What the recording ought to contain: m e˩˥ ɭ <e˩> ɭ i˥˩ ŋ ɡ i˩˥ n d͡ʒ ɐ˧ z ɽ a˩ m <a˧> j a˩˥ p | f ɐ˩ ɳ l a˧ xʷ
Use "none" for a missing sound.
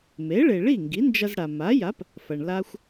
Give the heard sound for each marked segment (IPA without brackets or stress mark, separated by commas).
e˩, a˩˥